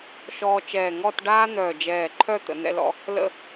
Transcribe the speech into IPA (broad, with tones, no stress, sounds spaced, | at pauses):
ʃ ɔː˧ t͡ʃ ɛː˧˩ ŋ ɔ˥˧ t ɖ aː˥ n̪ œː˧˩ d͡ʒ ɛː˧˩ ǃʰ œ˥˧ t̪ ə̰˩˧ n̪ ɛ̰˧ l ɔ̰˧ | l ə̰˥˧